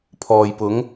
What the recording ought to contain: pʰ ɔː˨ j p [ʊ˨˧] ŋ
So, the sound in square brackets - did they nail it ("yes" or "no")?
yes